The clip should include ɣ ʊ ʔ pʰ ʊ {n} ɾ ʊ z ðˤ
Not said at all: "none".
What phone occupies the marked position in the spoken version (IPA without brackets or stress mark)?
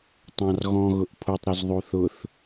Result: tˤ